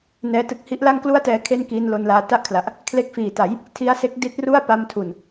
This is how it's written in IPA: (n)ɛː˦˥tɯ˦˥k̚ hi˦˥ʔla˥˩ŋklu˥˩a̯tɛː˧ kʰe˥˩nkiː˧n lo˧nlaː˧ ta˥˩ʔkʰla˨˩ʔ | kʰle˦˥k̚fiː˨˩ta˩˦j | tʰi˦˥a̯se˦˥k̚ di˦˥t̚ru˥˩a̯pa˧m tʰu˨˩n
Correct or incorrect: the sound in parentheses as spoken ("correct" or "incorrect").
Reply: correct